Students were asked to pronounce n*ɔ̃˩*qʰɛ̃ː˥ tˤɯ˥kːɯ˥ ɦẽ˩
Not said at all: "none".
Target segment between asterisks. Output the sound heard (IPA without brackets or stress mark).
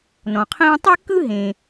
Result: ɔ̃˩